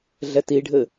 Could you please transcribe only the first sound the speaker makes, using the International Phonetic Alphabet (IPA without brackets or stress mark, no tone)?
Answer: ɮ